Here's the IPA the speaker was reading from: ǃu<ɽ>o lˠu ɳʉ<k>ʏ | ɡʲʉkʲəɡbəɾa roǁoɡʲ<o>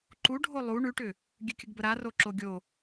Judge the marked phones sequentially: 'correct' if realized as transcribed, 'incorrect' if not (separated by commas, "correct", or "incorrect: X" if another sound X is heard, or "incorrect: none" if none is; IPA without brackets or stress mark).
incorrect: ɖʱ, incorrect: ʈ, correct